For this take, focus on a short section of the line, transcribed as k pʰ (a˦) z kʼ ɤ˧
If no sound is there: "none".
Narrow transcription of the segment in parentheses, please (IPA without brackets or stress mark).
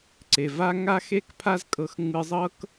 a˦